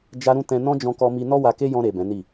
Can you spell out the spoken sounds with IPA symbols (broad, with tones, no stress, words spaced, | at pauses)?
d͡ʒa˦ɾũ˦ tɛ̃˧ nɔ̃˦d͡ʒɔ̃˧kɔ˧mi˧ nɔ˦wa˧ke˦ jɔ̃˧ɾe˨ bɛ̃˨˦ni˦˨